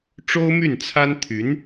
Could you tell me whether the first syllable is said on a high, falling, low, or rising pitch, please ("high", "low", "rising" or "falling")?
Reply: high